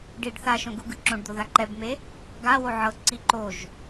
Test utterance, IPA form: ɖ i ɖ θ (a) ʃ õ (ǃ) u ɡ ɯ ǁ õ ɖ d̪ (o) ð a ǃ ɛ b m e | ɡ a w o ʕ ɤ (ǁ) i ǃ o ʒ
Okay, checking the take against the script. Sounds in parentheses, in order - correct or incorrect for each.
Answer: correct, incorrect: ɡ, correct, incorrect: ǀ

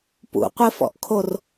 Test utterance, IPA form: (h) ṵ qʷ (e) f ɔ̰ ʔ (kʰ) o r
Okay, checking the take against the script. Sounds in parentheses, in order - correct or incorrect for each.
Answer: incorrect: p, correct, correct

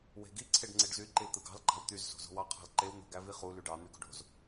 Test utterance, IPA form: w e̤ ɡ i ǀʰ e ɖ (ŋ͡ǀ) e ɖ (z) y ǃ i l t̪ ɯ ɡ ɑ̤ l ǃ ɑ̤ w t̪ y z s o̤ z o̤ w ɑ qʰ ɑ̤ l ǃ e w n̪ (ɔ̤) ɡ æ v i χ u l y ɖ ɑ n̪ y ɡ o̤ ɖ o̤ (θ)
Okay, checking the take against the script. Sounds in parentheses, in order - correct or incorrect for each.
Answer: correct, correct, incorrect: o̤, incorrect: z

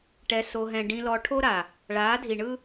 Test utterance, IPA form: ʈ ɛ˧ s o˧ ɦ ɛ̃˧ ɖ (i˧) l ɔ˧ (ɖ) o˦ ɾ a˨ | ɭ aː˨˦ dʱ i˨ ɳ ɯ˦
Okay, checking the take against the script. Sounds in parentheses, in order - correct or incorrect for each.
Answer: incorrect: ĩ˧, incorrect: ʈʰ

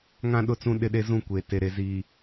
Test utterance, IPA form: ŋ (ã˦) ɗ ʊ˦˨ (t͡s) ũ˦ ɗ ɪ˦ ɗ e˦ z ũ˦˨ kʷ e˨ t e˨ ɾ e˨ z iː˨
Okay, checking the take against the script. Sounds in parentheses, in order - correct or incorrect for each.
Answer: correct, correct

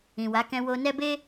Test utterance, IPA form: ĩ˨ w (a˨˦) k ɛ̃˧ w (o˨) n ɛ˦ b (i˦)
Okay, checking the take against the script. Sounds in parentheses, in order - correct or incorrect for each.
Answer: correct, incorrect: o˧, incorrect: e˦

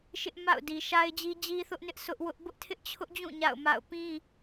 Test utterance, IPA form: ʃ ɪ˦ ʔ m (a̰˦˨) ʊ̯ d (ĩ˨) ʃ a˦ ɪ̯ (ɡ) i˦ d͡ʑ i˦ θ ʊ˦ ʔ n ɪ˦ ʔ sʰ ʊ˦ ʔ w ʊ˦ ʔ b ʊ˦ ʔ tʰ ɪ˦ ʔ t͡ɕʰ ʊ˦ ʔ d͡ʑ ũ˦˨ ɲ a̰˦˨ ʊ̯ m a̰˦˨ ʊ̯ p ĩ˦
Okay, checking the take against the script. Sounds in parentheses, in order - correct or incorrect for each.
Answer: correct, incorrect: i˨, incorrect: d͡ʑ

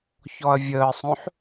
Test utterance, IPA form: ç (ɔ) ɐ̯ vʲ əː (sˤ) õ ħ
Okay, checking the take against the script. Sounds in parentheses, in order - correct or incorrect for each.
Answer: correct, correct

